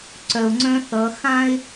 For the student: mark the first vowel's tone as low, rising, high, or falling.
low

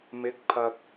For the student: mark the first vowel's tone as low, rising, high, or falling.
rising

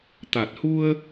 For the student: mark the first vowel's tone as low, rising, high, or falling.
low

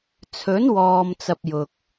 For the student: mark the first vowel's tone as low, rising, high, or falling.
rising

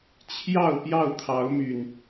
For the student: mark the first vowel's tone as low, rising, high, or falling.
falling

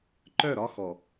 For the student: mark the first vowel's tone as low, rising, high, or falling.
falling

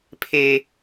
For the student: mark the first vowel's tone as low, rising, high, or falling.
high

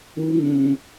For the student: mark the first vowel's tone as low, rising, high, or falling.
high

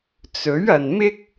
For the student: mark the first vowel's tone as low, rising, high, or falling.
rising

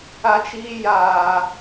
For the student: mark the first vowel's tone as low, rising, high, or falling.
high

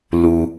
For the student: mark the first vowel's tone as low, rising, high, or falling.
low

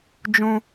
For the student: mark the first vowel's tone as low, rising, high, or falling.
high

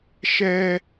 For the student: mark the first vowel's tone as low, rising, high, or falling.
high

